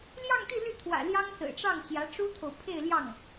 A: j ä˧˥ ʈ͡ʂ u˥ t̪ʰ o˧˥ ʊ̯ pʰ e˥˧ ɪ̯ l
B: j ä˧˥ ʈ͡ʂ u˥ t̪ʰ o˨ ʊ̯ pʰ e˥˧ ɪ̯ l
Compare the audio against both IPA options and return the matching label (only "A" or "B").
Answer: B